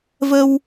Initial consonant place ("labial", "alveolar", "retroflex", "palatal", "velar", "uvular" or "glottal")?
labial